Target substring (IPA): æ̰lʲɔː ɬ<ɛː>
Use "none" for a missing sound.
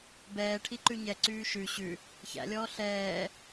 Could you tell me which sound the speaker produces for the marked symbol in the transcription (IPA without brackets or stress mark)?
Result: ɛː